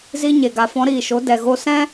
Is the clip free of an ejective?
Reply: yes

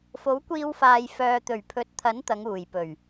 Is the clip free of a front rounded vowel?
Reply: no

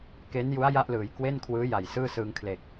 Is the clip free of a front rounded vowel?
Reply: yes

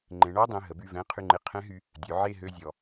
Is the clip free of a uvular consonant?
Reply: no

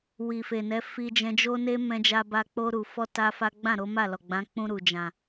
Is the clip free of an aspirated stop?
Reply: yes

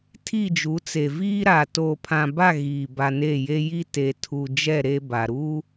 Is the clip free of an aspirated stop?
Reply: no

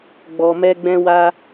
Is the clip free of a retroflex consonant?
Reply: yes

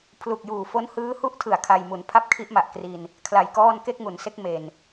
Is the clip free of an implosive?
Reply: yes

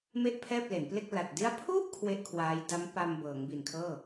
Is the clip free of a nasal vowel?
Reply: yes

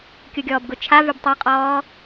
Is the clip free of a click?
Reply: yes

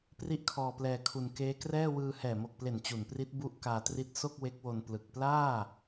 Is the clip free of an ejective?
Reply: yes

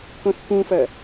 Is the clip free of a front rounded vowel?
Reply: yes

